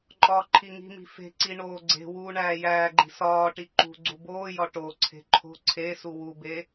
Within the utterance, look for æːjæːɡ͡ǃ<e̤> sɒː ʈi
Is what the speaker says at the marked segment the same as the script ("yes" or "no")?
no